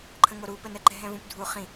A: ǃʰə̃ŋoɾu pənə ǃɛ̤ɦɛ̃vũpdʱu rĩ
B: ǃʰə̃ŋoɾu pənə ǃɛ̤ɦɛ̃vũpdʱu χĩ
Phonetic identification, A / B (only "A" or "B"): B